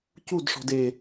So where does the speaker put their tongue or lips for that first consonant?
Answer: palate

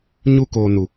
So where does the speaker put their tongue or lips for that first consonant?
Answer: palate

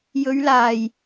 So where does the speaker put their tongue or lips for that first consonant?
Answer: palate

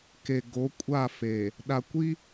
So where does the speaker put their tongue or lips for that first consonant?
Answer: velum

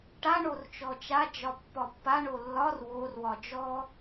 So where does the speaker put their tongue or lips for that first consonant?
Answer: retroflex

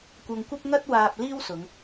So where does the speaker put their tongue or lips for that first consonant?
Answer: velum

